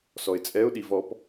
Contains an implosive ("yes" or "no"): yes